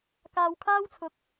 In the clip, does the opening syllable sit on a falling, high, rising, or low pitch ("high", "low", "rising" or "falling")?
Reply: low